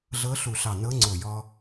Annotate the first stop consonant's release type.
click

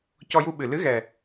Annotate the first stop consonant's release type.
plain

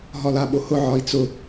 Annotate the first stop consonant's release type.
implosive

